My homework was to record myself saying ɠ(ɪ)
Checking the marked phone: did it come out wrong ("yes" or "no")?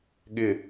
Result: no